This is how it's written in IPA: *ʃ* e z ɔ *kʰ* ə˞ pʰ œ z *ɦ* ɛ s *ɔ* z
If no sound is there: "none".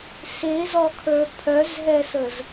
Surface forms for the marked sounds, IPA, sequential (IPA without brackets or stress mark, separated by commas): s, kʰ, ɦ, ə